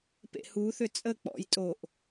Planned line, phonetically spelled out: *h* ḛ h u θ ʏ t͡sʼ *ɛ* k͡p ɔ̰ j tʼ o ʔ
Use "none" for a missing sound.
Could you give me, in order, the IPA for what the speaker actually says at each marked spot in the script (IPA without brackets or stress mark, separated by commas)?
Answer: p, ə